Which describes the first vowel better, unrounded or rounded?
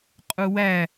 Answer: rounded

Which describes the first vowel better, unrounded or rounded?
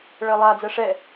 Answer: unrounded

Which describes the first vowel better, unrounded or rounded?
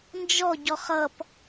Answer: rounded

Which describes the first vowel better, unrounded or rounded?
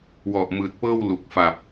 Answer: rounded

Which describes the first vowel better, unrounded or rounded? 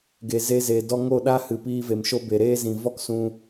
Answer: unrounded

